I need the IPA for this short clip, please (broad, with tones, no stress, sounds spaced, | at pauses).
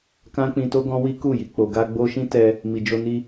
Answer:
k ã˦ k͡p ĩ˧ t o˦ ɡ ɔ̃˦ w i˦ k u˦˨ j i˨ k͡p o˨ ɡ a˧ ɡ͡b o˧ ʃ ĩ˦ t ɛ˧ | m i˨ d͡ʒ o˧ n i˧